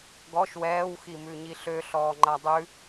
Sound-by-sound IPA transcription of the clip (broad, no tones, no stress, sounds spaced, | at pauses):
ɡ ɔ ʃ w ɛː w x i m ʉ ɲ i ɬ ø ɬ ɔː ŋ͡ǃ a dˤ ʉ